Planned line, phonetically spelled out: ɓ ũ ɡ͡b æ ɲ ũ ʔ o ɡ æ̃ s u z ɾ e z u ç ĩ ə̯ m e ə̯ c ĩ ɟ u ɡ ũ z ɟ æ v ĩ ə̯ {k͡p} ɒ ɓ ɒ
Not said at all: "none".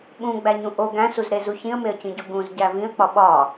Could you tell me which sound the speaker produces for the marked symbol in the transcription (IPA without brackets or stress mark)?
k͡p